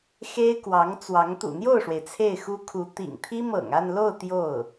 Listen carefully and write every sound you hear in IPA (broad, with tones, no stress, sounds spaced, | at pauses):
x e˥ ɪ̯ k w ɑ˧˥ ŋ t͡s w ɑ˧˥ ŋ t̪ ṵ˨˩ n̪ j o˥˩ ʊ̯ ʂ w e˩ ɪ̯ t͡sʰ e˥˩ ɪ̯ x u˥ kʰ u˧˥ t̪ ḭ˨˩ ŋ t̪ʰ i˥ m ɤ̰˨˩ ŋ a˥˧ n l o˥˧ ʊ̯ t̪ j o˥˩ ʊ̯